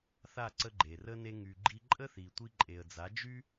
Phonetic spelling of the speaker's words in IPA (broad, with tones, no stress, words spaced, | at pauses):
θa˦˨ǀə˧ ɡ͡ǃe˨rə˦ ne˧ŋy˨ ɡ͡ǃi˧ ǃʼə˦θi˨ tʷi˧ǃʼe˨ə̯d͡za˨˦d͡ʒy˦